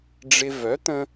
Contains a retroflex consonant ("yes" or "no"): yes